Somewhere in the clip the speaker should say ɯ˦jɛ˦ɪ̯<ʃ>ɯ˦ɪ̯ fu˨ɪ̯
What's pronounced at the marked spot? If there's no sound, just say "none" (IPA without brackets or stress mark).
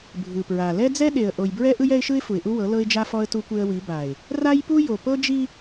ʃ